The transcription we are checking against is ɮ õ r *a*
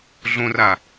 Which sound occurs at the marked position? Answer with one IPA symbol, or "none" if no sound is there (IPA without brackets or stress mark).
a